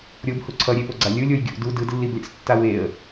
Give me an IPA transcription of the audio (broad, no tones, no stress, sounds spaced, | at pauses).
ɾʲ o b h u ǀʰ ʌ ɾʲ e p o ɡ͡ǀ a lʲ ɯ lʲ o j ɡʲ ṵ d u d ɯ d lː i b lʲ a̰ s tː a w e ə̯